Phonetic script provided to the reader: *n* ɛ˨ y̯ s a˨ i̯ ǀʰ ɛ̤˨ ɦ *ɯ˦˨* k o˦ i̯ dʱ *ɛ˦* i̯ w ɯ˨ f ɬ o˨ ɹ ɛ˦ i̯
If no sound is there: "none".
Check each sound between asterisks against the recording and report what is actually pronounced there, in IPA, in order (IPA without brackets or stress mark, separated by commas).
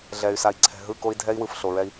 ɮ, ɯ˦˨, ɛ˦